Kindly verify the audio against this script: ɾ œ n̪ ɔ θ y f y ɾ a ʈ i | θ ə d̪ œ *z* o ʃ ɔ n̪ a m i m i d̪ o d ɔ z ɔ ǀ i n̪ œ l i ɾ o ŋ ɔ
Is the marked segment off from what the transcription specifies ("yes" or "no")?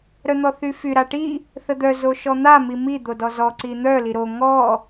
no